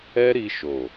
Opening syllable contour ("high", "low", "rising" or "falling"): high